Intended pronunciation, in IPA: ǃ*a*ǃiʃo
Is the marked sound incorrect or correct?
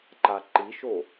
correct